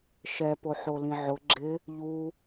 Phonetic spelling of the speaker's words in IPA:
ʃ ɛ p o ħ o l ĩ ʕ ʊ ɡ͡ǁ ɪ | ʎ u

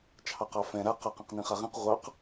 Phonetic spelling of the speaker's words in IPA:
t͡ʃʰ ɑ q ɑ f ɛ̃ ɾ a q ɑ q ɛ̃ q n ĩ χ a ʁ ĩ q ʁʷ ɑ q

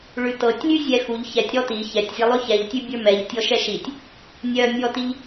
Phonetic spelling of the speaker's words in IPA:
ɭ ʉ t ɤ tʲ lʲ ʉ zʲ ɛ x u ʎ ç ɛ tʲ ɾ ɔ t i ç ɛ tʲ zʲ ɛ lˠ ʉ ç ɛ ʎ tʲ ʉ bʲ ə˞ m ɛ ʎ tʲ ɔ ʃ ɛ ʃ i tʲ | nʲ œ mʲ ɔ t i ʎ

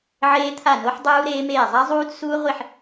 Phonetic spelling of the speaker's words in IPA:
ʕ eː˦˥ t̪ʰ a˥˩ n o˦˥ ħ dˤ uː˦˥ ɾ eː˦˥ m eː˥˩ zˤ a˦˥ zˤ uː˦˥ d s uː˦˥ ʁʷ i˥˩ ħ

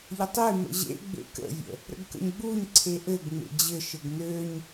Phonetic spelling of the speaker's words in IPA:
ʎ ə tˤ e m ə̰ ʑ ḛ ɡ͡b ḛ k ə̰ vʲ ə̰ | ɾ ə̰ ɡ k ə̰ ɲ ɡ͡b u ɲ ǀʰ e ʔ ɘ ɡ ŋ͡m ḛ d͡ʑ ɘ ʃ ɘ ɡ n ø ɲ

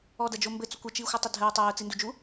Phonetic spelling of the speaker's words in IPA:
ɔ d ɐ d͡ʒ o m b ɘ t͡s o kʷ ɘ t͡ʃ iː xʷ ɨ tˤ ɘ dʱ ɘ ʊ̯ tˤ ɛː ʊ̯ t͡s i n d u d͡ʒ u

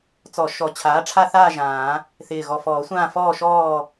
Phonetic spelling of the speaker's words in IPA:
t͡s ɔ˨˩˦ ʃ ɔ˩˥ t͡ɕʰ aː˩˥ ʈ͡ʂʰ a˦˨ θ aː˦˨ ʒ ãː˨˩˦ | θ ɪː˨˩ ɣ ɔ˨˩ f ɔː˨˩˦ sʷ ãː˦˨ f ɔː˦˨ ʃ ɔː˦˨

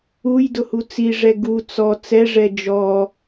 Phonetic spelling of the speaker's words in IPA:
u j d ʊ h u t͡s i ʐ ɛ ɡ u t͡s ɔ t͡s ɛ ʐ ɛ d͡ʒ ɔ

